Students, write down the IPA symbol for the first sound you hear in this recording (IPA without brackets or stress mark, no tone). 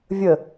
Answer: vʲ